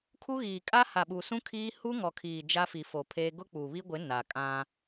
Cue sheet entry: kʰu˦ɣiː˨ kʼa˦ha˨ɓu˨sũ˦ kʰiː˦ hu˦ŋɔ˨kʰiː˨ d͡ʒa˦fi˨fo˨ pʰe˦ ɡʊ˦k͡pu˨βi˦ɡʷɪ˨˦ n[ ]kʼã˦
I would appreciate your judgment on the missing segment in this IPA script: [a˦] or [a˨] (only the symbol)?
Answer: a˨